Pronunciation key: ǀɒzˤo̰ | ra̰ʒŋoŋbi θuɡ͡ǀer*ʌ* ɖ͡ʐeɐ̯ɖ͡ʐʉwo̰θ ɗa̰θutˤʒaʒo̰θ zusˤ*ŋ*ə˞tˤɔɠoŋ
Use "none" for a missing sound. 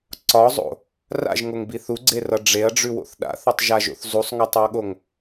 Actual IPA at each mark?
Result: ʌ, ŋ

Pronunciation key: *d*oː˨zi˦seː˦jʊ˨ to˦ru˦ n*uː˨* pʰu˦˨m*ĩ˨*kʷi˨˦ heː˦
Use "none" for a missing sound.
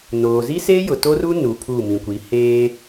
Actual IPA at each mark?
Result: n, u˨, ĩ˨

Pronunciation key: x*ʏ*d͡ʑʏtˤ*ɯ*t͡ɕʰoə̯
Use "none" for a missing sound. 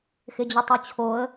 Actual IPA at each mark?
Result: ɪ, u

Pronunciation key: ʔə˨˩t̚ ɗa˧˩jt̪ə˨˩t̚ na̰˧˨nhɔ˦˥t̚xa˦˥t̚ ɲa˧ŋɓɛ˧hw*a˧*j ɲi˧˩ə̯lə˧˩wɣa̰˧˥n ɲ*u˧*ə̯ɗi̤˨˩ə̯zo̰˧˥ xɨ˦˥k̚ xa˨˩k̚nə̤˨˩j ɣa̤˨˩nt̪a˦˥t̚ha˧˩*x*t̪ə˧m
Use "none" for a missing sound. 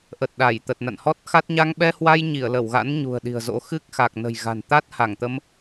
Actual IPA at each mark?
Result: a˧, ṳ˨˩, ŋ

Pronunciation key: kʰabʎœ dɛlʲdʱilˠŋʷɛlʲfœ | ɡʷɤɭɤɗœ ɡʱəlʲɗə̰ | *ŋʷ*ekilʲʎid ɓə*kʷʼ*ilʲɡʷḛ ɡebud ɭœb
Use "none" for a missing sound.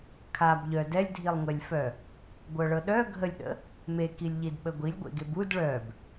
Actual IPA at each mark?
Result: m, ɡʷ

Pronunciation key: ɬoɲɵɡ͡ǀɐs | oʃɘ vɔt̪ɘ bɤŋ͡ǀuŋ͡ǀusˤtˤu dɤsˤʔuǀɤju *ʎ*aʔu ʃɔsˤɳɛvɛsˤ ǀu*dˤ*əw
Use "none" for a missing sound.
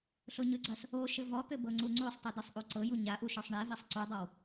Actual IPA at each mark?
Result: ɲ, dˤ

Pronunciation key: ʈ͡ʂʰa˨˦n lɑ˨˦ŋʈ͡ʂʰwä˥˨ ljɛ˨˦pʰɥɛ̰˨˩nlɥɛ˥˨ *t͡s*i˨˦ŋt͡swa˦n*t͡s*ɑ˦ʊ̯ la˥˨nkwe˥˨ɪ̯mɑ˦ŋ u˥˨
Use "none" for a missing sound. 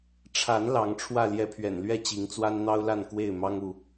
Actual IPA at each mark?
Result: t͡ɕ, n̪

